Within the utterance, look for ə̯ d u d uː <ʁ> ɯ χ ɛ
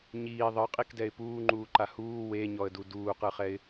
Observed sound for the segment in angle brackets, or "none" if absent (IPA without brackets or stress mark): q